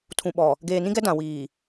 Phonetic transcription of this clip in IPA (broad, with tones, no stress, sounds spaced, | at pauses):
tʰ ũ˨ ɓ ɔ˨ | ɡ eː˨ n ĩ˦ ɡ ɛ˦ d ã˨ w iː˨